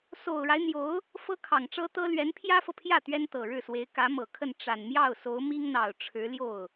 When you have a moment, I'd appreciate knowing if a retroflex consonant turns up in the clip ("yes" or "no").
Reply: yes